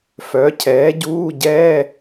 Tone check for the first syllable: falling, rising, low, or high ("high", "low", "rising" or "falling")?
rising